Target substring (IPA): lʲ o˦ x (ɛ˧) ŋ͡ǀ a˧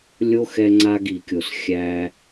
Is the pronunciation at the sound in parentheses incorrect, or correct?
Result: correct